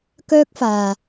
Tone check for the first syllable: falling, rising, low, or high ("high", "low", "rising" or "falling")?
high